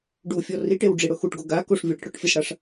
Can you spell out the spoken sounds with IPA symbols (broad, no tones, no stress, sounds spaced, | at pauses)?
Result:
ɖ u fʲ ɔ r i ʈ e w ɖ͡ʐ i ɽ ʊ x u ʈ ɡ o ɡ a k o ʂ vʲ o ɽ ɪ ʈ ɽ ʊ ʈ fʲ e s ɽ a ʂ